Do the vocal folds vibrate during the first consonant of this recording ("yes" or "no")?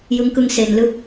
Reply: yes